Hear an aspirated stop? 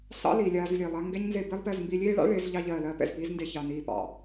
no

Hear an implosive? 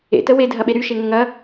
yes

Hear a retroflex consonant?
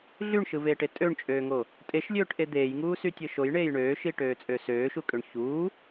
yes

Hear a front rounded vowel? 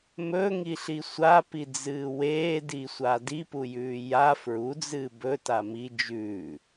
no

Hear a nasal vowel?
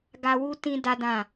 yes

